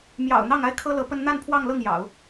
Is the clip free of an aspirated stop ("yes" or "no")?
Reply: no